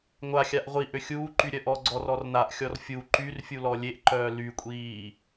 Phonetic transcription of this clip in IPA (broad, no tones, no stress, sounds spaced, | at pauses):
ŋʷ a xʲ a ʔ ʁʷ i ʔ ø xʲ uː ǃ y ɾʲ œ ʔ ɔ ɡ͡ǀ ɔ r ɔ r n a ʔ xʲ ɔ r fʲ u ǃ y r fʲ u l ɔ lʲ e ʔ ǃ œː l y kʷʼ iː